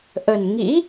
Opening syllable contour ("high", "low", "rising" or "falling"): low